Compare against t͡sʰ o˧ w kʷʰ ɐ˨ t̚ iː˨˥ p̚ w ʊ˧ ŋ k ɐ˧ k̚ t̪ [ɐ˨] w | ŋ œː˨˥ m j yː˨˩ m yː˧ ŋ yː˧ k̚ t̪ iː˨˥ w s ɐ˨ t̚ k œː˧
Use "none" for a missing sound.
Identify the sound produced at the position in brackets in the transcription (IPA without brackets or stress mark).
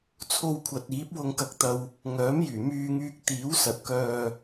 ɐ˧